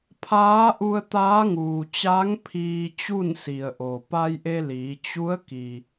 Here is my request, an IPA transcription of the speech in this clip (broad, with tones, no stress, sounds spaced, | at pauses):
pʰ aː˧˥ ʔ u˧ ə̯ t̪ aː˧˥ ŋ uː˩ t͡ɕ a˧˥ ŋ pʰ iː˧ t͡ɕ u˥˨ n s i˩ ə̯ ʔ o˩ p a˧ j ʔ e˧ l iː˩˧ t͡ɕ u˧˥ ə̯ k i˩